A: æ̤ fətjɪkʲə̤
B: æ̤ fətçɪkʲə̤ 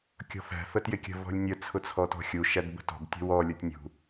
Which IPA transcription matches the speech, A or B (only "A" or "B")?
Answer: A